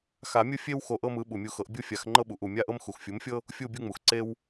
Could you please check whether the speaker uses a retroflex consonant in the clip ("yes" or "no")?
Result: no